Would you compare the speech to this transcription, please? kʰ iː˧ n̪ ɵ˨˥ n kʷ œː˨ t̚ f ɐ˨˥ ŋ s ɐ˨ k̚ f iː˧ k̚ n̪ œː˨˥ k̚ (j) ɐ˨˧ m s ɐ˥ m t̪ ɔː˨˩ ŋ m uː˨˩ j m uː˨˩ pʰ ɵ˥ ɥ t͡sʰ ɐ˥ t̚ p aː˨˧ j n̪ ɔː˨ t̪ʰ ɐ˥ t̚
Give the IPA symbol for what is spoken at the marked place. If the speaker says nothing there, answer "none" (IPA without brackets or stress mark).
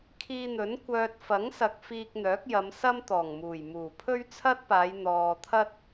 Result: j